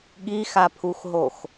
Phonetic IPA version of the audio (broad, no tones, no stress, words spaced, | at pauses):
ɠixapʰuxɦox